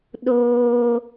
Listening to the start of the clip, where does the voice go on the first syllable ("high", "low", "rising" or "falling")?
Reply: high